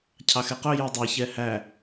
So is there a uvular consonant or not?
yes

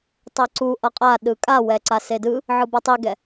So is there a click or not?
yes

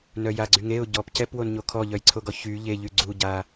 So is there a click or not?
yes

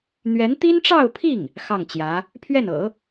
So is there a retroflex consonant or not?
yes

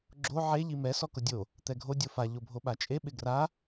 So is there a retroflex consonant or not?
no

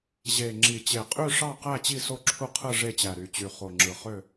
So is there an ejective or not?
yes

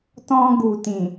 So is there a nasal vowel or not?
yes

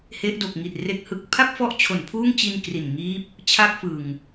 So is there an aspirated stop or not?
yes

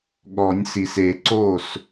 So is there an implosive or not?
yes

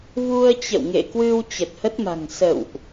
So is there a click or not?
no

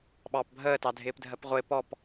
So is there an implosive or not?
yes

